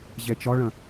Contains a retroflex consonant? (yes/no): yes